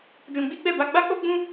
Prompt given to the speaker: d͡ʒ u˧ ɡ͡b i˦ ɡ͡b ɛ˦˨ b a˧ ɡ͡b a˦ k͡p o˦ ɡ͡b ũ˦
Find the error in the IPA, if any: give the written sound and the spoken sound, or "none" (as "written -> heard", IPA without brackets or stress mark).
u˧ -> ũ˧